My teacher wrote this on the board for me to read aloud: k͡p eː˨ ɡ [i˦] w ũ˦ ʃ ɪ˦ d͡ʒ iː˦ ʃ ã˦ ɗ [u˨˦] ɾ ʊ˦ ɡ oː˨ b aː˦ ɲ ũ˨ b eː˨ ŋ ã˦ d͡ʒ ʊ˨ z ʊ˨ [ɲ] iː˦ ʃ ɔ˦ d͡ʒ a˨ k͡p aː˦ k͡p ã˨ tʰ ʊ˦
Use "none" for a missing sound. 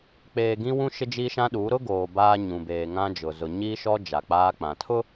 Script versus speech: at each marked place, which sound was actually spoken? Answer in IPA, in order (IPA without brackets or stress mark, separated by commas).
ĩ˦, u˨˦, ɲ